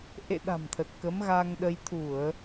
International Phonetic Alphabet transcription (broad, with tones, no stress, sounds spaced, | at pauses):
ʔ ḛ˧˨ ɗ a̤˨˩ m t̪ʰ ə˨˩ t̚ k ə˨˦ m ɣ a˧ ŋ ɗ ə˧ j t̪ʰ u˧˩˨ ə̯